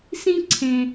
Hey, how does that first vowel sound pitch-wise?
high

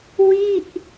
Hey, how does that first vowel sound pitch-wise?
falling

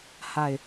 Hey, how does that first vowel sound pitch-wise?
falling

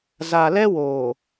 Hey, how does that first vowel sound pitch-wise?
low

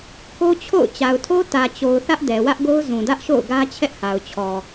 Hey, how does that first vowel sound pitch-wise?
high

